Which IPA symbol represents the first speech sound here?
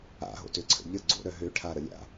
a̰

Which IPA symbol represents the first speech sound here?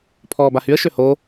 pʰ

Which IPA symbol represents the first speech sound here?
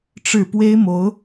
ʈ͡ʂ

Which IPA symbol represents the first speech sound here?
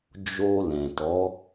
d͡ʒ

